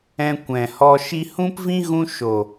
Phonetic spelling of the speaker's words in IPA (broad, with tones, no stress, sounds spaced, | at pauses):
ɛ̃˧ kʷ ɛ̃˨ h ɔ˧ ʃ i˧ h ũ˦ p v ĩ˦ ɣ ũ˦ ʃ o˨